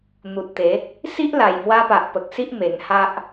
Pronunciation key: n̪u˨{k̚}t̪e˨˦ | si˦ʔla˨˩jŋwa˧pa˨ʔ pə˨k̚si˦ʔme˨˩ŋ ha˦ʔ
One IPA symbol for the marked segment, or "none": t̚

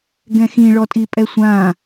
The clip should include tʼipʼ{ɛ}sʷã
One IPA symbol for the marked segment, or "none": ɛ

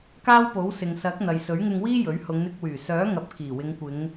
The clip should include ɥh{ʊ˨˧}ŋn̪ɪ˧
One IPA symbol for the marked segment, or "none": ʊ˨˧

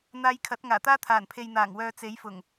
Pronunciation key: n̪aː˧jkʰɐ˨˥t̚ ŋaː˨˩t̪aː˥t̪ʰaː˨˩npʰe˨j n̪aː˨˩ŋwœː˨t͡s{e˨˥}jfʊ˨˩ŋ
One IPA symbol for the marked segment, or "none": e˨˥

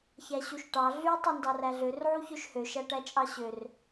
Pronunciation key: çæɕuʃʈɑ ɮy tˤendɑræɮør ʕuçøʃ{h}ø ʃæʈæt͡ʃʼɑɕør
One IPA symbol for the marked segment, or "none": h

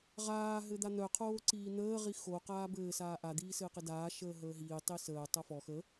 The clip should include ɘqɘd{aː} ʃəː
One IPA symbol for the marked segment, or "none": aː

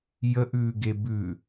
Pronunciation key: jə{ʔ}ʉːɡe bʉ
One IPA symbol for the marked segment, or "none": ʔ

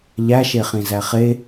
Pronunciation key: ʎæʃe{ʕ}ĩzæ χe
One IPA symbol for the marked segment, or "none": χ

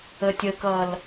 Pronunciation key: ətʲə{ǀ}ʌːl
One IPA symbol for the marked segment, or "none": k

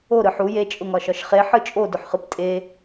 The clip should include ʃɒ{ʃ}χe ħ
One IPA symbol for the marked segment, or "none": ʃ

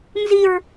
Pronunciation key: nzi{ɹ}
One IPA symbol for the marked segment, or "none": ɹ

